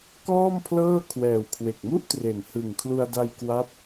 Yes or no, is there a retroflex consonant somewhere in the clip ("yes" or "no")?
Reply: no